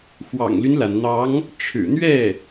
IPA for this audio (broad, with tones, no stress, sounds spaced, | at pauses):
x w ɑ̰˨˩ ŋ l y˦ n l a˩ n n̪ ɑ˧˥ ŋ | ʈ͡ʂʰ ɻ̩˨˩ n̪ ɥ ɛ˥˩